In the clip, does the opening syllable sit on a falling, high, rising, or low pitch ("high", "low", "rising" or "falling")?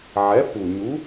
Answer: rising